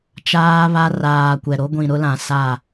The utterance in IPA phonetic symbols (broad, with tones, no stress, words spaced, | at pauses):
t͡ʃaː˦βa˦ raː˨ kʷɛ˨ɾo˦ ɡʷĩ˨ɾʊ˦lã˨sa˦˨